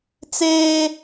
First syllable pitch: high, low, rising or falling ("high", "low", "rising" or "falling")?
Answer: high